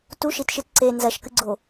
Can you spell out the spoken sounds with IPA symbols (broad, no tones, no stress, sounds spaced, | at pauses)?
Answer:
t u ʃ i t ʃ ɨ t ǀ e n z ɐ ʃ k ɨ ɡ͡ǀ o